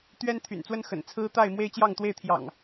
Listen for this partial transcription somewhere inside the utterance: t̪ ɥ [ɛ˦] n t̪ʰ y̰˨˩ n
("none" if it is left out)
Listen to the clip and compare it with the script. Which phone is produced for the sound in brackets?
ɛ˦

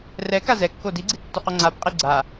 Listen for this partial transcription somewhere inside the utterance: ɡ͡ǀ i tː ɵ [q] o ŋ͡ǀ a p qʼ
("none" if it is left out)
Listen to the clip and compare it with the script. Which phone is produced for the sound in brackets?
q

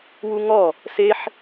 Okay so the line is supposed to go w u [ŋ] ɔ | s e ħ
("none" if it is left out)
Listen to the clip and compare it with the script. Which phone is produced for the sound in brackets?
ŋ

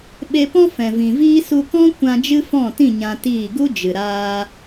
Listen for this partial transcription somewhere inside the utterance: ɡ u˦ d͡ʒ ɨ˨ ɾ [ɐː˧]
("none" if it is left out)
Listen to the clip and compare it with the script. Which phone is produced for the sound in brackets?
aː˧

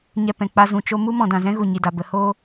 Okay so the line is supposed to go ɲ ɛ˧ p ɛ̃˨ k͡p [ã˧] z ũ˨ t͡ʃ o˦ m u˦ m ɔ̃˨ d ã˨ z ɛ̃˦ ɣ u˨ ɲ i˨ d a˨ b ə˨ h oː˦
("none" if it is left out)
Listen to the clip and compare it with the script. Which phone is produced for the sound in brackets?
a˧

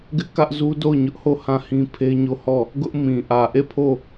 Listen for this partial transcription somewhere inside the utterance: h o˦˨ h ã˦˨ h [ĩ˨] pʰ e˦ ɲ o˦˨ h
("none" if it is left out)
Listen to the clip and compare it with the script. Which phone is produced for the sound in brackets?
ĩ˦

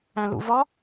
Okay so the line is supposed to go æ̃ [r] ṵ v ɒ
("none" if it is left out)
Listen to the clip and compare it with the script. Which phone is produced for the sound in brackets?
l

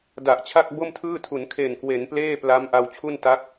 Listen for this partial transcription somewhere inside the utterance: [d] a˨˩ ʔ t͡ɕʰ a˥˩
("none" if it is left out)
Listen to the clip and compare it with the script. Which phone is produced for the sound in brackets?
d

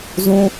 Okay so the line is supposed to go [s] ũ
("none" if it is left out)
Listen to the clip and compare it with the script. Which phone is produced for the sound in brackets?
z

